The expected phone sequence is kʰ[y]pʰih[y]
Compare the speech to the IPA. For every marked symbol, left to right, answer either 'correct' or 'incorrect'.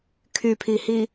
correct, incorrect

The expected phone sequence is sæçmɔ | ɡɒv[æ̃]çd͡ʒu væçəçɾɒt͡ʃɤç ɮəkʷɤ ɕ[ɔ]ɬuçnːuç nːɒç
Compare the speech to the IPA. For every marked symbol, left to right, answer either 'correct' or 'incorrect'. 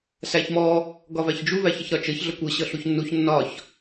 incorrect, incorrect

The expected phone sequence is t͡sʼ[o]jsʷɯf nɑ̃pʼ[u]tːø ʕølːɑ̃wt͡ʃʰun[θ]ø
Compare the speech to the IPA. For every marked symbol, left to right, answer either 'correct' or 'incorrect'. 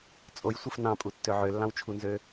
correct, correct, incorrect

